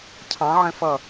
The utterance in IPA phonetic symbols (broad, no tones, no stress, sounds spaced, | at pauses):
cʰ ɑ̃ ʕ ɛ̃ f ʌ